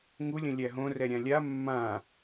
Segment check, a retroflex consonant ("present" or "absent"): absent